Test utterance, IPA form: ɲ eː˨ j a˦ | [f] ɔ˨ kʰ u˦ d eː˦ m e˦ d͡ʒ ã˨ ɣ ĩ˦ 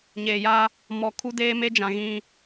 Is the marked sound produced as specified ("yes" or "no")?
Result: no